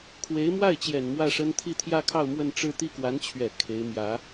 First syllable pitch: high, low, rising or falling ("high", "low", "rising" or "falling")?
rising